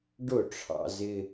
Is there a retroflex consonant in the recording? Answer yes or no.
yes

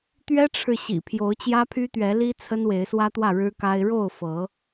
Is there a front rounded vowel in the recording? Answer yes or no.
yes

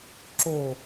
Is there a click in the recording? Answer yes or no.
yes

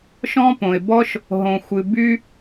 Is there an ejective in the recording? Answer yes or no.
no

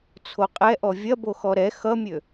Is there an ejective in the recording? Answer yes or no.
yes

